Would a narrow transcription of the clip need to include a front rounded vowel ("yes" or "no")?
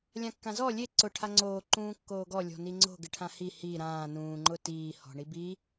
no